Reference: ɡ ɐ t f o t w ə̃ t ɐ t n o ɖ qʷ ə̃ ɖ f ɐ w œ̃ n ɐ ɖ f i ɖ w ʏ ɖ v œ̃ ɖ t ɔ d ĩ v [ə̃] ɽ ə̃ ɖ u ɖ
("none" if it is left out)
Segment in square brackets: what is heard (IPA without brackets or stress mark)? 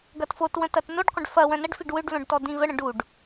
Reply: ə